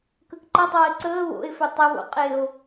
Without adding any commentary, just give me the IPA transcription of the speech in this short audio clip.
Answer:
k ə k ǃ ɤ tˤ ɤː e̯ ǀ əː β o̰ e̯ f ɵ tˤ ə β o̰ qʼ e o̯

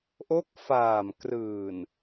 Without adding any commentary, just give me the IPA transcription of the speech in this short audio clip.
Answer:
ʔ o˦˥ k̚ f aː˨˩ m k r ɯː˨˩ n

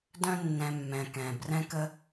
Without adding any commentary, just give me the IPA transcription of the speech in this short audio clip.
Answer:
d œ̃˨ nː ɛ̃˩ mː ɛ̃˩ k ɛ̃˩ b r ɛ̃˦ k ə˦

